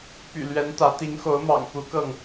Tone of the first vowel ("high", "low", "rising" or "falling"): low